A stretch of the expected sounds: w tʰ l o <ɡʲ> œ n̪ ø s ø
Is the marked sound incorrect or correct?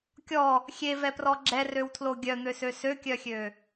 correct